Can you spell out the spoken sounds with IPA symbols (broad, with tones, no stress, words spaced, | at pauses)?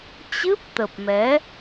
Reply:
t͡ɕɨ˦˥p̚t̪ə˨˩p̚mɛ˨˦